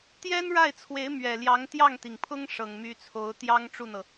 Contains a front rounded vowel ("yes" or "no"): yes